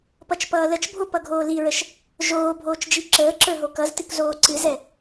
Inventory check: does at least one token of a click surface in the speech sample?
yes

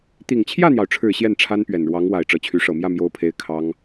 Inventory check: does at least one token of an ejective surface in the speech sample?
no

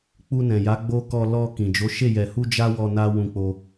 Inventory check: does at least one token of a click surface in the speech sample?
no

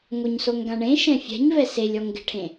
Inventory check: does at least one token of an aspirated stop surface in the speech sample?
yes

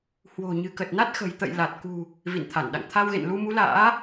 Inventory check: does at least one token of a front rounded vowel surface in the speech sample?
no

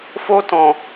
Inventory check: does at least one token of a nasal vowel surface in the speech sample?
yes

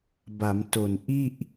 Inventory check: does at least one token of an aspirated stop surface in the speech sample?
no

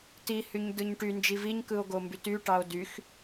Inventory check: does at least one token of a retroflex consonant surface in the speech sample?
yes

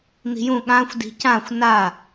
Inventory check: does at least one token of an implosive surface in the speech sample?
yes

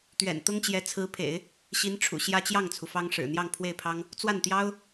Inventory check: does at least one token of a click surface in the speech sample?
no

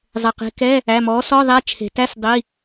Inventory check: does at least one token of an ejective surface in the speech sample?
no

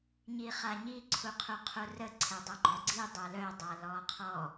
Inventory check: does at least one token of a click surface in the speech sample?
yes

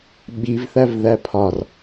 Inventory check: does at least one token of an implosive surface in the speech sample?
yes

